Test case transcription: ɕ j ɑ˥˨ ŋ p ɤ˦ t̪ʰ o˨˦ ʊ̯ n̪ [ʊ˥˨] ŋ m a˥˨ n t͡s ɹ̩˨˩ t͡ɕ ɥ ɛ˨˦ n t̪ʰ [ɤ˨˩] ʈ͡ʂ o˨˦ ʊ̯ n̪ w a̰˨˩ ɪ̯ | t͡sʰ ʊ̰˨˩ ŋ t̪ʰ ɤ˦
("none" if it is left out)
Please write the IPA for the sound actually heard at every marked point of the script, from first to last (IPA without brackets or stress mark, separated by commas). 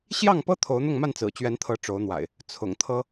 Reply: ʊ˥˨, ɤ˨˦